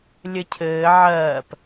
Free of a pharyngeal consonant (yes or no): no